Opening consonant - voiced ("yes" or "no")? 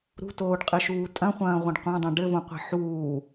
yes